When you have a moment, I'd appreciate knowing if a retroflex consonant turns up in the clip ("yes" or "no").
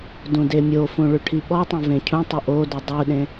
yes